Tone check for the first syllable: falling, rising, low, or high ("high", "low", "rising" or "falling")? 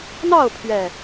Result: falling